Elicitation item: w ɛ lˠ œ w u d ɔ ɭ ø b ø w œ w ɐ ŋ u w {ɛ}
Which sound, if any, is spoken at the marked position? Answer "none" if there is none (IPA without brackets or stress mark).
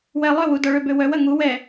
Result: ɛ